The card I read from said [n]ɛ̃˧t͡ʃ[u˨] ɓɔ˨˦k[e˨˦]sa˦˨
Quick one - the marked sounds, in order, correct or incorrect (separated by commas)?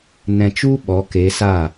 correct, incorrect, correct